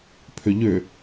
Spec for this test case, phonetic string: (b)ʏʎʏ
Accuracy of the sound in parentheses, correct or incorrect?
incorrect